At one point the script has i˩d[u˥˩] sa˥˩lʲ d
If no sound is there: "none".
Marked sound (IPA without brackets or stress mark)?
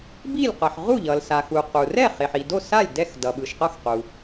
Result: o˥˩